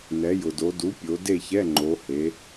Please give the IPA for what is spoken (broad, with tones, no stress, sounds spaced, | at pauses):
n ɛ˩˧ j ʊ˩ d o˩˧ d u˩˥ pʲ o˩˧ d e˥˨ ç ɛ˧˥˧ ŋ͡ǃ o˩˧ h e˩˧